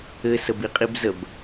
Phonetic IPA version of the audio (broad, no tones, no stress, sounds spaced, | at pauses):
ɘ s ə b i qʼ i b z ə b